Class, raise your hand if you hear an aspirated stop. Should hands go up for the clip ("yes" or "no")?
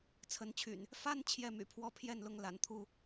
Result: yes